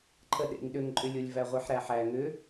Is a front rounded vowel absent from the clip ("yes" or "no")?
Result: no